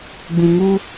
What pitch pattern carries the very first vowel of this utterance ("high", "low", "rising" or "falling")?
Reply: low